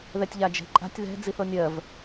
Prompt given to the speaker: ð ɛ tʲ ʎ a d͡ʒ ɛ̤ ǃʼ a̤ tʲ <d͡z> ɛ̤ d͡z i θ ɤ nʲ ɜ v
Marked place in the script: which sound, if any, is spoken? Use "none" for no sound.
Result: ð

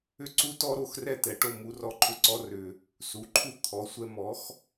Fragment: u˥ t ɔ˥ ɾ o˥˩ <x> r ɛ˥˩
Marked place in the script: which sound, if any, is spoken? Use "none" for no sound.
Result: x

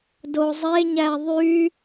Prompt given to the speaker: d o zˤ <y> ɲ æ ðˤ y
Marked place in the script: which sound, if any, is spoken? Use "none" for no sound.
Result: e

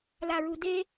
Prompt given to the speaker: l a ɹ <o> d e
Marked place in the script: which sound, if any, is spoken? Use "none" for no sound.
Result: u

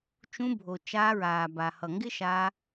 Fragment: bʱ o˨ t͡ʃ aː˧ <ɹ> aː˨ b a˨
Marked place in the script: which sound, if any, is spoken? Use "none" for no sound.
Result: ɹ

